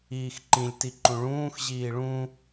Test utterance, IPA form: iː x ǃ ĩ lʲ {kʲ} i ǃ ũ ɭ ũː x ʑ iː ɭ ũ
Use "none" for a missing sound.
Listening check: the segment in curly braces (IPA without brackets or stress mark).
t